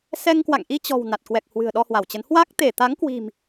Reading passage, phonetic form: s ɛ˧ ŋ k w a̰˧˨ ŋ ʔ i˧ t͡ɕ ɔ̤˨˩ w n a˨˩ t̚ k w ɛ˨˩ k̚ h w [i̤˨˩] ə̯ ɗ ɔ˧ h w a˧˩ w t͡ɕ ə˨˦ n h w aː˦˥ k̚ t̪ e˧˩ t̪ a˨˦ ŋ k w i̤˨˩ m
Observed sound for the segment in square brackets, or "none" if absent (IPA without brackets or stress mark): ɨ̤˨˩